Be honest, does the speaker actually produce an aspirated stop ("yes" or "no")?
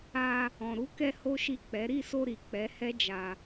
no